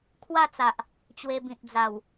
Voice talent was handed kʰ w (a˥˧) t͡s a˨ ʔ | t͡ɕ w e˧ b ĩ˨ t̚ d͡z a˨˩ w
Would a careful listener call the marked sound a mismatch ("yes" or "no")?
no